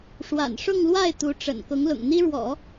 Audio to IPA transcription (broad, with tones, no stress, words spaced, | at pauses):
ʂwa̰˨˩nʂʊ˥˧ŋlwa˥˩ɪ̯ t̪u˧˥ʈ͡ʂə̰˨˩n kʊ˧˥ŋlʊ̰˨˩ŋn̪i˥ɻwɔ̰˨˩˦